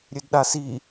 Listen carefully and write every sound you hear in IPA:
ɾʲødɗasi

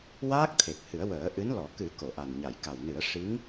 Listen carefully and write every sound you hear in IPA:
waː˦˥k̚ t̪ʰe˨˩k̚ hɨ˨˩˦ə̯wəː˨˩˦ʔɨ˧˥nlɔ˨˩˦ kɨ˨˩˦ ko˨˩˨ʔa˨˩nɲa˨˩˨j ka˨˩wnɨ˨˩˦ə̯ ʂi˧˥ŋ

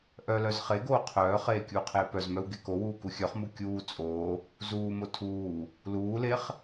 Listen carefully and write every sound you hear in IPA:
ʔœlœz χeɡoː qʰœːχeː kʲuːqʰeːpœzmœw ɡekowuː kuxʲœχmu kʲuː t͡sʼoː | zuːmo tʰuː | luːleχ

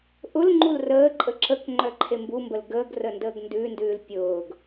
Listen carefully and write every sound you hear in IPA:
ʔʊlŋ͡ǃul rəːǃʼə ǁək ŋ͡ǃœǃʰembumbəl ɡəːɡ rəndəːɡndʉndʉːl pʲʊːɡ

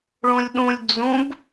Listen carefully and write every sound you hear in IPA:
ɭũlʲɗũlʲ d͡zũb

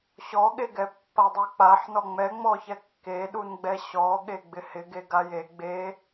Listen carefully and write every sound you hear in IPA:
ɕɔɠeɡɛ pːadˤuk͡paħnɔ ŋ͡mɛ ŋ͡mɔçɛkːeɗun ɡ͡bɛɕɔɠe ɡ͡bɪhɪɡe ɡaje ɡ͡be

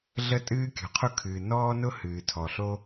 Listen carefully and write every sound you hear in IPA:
ɮə˥ tʼɨː˥kʲɔ̤˩qʰʊ˥kʰɨː˩ nɔː˥nʊ˥hɨː˩ tʰɔ˩ɬo˥

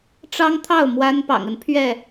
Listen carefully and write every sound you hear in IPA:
ʈ͡ʂɑ˦ŋt̪ʰɑ˥˨ʊ̯ mwa˦n pɑ̰˨˩ŋə˨˦n pʰɥɛ˥˨

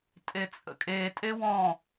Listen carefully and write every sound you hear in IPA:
tʼet͡sʼə̰kʼe tʼewɔ̃

